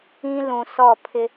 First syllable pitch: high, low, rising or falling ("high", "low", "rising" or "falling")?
high